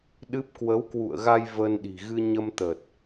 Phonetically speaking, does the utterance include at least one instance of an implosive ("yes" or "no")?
yes